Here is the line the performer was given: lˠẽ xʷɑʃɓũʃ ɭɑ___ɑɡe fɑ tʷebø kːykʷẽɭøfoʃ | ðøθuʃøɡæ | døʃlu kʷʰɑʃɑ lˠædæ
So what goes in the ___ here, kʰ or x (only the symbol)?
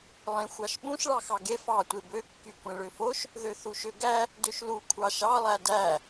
x